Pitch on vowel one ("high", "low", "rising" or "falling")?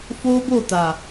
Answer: high